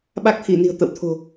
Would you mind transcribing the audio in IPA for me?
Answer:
ɓ a˦˥ k̚ t̪ʰ i˧˩ n i̤˨˩ ə̯ t̪ ə̰˧˨ w t̪ʰ o̤˨˩

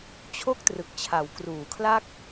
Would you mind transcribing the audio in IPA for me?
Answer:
t͡ɕʰ o˥˩ k̚ t r ɯ˨˩ k̚ t͡ɕʰ a˩˦ w k r uː˩˦ kʰ l a˥˩ k̚

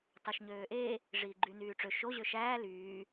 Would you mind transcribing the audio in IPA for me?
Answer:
t ɑ ʃ ɲ øː ʔ e | ʐ iː ɡ͡ǃ y n yː ʈ͡ʂ ø ʃ o ʑ ø ʃ æː l yː

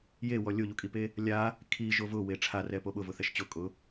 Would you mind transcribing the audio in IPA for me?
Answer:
j e w ɔ lʲ o ʎ u kʼ i p e | lʲ a | kʰ i ʒ o v ʊ w e ʈ͡ʂʰ a r ɛ p o ɓ ʊ v ʊ θ ɛ ʃ t͡ɕ ʊ kʼ ʊ

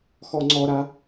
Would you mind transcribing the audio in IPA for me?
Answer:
x ɔ ŋ͡ǀ ɔ ɾ a

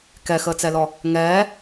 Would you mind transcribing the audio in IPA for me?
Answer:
k ɛ x əː t͡s ɛ l ɔ | ŋ ɛː

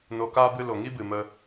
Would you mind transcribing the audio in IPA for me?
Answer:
n o˧ k aː˦ b ɨ˧ l o˨ ŋ i˦ b ɨ˨ m ə˦

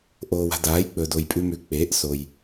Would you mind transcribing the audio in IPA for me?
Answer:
ʔ oː˨ w a̤˨ d aː˩˥ j k͡p ɵ˨ d o˨ j pʼ ʉ˦ m ʉ˩˥ k͡p eː˩˥ ʔ s o˨ j

